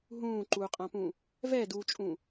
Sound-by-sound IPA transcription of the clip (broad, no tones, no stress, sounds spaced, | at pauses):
ɦ ũː ǃ uː qʼ ã p ũː | v ɛ d uː t͡ʃʼ ũː